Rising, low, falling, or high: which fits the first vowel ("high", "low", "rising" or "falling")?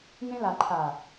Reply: high